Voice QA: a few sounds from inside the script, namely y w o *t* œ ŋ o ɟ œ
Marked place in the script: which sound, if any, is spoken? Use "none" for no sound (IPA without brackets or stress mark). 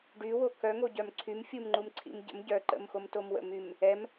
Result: k